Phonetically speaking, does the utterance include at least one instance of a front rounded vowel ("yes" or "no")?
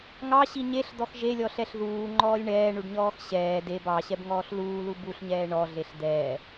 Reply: no